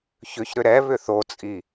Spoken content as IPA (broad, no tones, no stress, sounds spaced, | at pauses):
ç ʏ ç ɾ ʏ ɾ ɛ β ʏ θ o t͡sʼ i